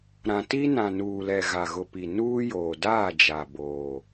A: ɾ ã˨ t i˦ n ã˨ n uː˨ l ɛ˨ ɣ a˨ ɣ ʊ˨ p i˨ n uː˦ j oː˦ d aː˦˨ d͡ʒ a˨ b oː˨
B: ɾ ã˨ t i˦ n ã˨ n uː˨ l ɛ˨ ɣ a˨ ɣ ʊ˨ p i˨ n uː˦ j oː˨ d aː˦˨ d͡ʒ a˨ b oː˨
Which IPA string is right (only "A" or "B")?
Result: B